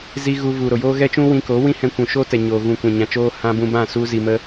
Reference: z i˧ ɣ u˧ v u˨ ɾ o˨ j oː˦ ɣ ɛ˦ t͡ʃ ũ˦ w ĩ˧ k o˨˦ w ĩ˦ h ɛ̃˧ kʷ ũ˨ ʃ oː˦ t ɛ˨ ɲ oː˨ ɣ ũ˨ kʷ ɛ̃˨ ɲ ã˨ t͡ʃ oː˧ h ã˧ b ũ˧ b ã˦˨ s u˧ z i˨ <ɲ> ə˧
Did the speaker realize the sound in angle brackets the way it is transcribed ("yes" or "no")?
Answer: no